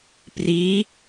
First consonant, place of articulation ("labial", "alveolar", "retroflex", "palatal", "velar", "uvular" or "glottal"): labial